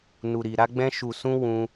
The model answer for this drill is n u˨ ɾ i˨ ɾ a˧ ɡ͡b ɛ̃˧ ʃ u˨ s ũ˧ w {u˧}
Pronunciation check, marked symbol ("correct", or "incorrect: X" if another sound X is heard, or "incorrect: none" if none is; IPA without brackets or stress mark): incorrect: ũ˧